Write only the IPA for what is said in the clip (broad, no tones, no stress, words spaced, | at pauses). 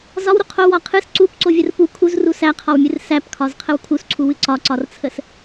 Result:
zɒwɾu qʰowɒ qʰɨs ǀupǀovʲər pu kʰuzru sæqʰɒwmʲɨr sæpkʰɒzqʰəw kʰusǀʰuwɨ ǀɒǀɒrt͡sʰəs